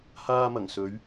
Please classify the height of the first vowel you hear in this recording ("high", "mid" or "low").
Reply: low